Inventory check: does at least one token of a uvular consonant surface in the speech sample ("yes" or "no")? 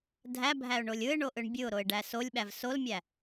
no